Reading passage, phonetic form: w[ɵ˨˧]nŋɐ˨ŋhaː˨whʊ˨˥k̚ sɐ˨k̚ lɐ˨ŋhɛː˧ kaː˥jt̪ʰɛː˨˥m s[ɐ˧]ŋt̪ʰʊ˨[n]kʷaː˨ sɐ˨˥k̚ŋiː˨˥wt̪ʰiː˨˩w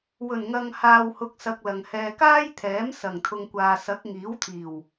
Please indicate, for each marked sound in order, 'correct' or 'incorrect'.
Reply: incorrect: ɵ˨˩, incorrect: ɐ˨˩, incorrect: ŋ

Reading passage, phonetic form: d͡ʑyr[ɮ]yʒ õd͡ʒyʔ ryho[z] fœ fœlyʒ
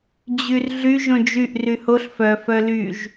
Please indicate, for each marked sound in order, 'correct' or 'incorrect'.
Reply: correct, incorrect: ɬ

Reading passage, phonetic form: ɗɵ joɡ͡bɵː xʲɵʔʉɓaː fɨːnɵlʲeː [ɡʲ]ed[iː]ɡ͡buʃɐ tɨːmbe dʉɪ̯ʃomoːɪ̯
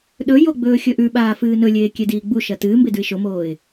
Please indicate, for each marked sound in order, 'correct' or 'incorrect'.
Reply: incorrect: kʲ, correct

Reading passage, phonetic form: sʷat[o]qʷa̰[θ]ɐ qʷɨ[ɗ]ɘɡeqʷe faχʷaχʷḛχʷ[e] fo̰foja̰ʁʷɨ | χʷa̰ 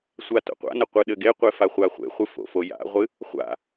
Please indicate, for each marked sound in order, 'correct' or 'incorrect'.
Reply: incorrect: o̰, incorrect: n, correct, incorrect: ɨ

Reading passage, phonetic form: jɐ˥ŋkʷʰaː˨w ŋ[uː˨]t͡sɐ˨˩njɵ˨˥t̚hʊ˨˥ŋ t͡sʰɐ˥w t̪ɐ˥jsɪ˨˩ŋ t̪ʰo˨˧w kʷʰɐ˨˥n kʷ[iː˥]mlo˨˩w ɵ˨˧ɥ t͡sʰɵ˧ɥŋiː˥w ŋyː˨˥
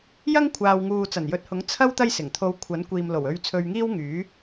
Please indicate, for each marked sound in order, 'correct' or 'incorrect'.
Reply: correct, incorrect: iː˨

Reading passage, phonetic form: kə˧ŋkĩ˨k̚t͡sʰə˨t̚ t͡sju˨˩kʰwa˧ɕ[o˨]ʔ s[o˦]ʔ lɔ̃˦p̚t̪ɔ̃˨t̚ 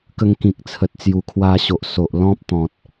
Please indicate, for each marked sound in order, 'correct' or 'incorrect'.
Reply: correct, incorrect: o˨

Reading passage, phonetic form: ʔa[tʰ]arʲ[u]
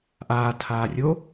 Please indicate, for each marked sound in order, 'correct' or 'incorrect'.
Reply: correct, incorrect: o

